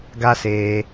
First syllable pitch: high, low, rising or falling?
high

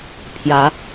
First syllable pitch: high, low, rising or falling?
rising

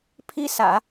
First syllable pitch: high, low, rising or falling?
high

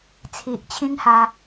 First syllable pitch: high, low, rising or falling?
low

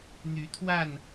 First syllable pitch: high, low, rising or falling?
rising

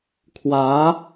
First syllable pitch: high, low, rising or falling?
rising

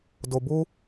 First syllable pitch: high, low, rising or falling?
low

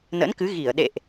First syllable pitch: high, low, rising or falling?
rising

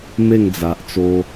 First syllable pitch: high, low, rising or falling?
falling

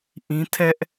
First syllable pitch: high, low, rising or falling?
high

